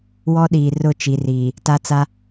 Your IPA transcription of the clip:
wɔ˦ɗiː˨ rʊ˦˨t͡ʃi˨riː˨ | ta˦t͡sa˦

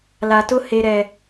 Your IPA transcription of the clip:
la˨tʊ˦ he˦ɾɛ˦

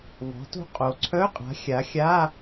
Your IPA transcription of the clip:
vɔ̤˩˥to̤˦˥ qʼo˩˧ǀʰœ˧˥˧qʼa̤˩˥ xʲa˩˥ xʲa˧˥˧

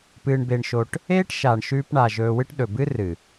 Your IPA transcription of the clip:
pɨː˧ɳbe˧ɳʃo˧ʈ | eː˦ʈʃa˨ɳ ʃʉː˧pɳa˨ ʒɵː˧wɨ˦ʈ ɗɵ˨bɨ˦rɨ˨

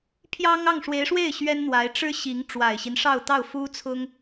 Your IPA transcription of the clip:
pʰjɑ˥ŋ ɑ˥˩ŋʂwe˧˥ɪ̯ʂwe˥˩ɪ̯ ɕɥɛ˥nn̪wa˧˥ɪ̯ ʈ͡ʂɻ̩˥ɕi˧˥ŋ ʈ͡ʂwa˨˩ɪ̯ɕi˦nʂɑ˥˧ʊ̯t̪ɑ˥˩ʊ̯ fu˥t͡sʰʊ˥ŋ

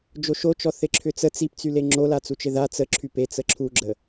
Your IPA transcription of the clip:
d͡ʒoʃot͡ʃɔ θɪǁʰʏt͡sə t͡sipt͡syle ŋ͡ǁolat͡sut͡ʃɪ ða t͡sə ǁʰype t͡səǁʰuɡ͡ǁə

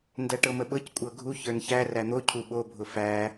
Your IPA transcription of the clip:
ndæʈɤməɓɤc kʷʼɤɡʱu çə˞nçæ ræn̪o cʰuɓobʱʊ fæ

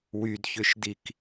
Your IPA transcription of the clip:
wydçʏʃdik

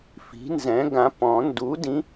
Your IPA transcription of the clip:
fi̤˨˥nzɛ̃˨˥ ɡã˨˥pɔ̃˨˩˦ ndu˨˥dĩ˨˥

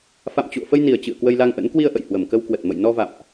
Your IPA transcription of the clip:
fa̰˧˨mt͡ɕṵ˧˨ə̯fə˧jni˨˩ə̯ t͡ɕɨ̰˧˨ə̯kwə˧jla˧ŋʔə̰˧˥n kwi˧ə̯ʔə̰˧˨jhwə˨˩m kə˧wkwə˨˩t̚mə̰˧˨j nɔ˧va̰˧˨mʔ

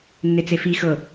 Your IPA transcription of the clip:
nːet͡sefi xɤ

